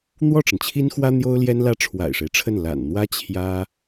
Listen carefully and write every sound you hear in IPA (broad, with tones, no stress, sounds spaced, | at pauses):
n̪ w ɔ˥˩ ʈ͡ʂ ə˩ n t͡ɕʰ i˥ n x w ä˥ n̪ j o˥ ʊ̯ l j ɛ˥ n l ä˥ ʈ͡ʂʰ w a̰˨˩ ɪ̯ ʂ e˦ ɪ̯ ʈ͡ʂʰ ə˥˩ n l a̰˨˩ n n̪ w ä˥ t͡ɕʰ j ä˥